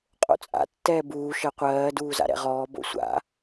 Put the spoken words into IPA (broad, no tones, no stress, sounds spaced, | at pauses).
qʼ o̰ t͡sʼ a̰ tː ɛː b uː ʃ ɜ qʷ ɜː d uː z a̰ ɾ ɛ̰ ʁ ɔː b o̰ sʷ a̰